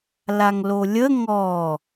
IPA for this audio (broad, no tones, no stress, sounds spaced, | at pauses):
l a ŋ l o lʲ ə ŋ ɔ